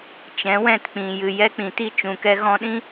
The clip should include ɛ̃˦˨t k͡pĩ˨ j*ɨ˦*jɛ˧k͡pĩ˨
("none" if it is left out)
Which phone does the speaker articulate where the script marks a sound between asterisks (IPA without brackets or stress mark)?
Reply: ɨ˨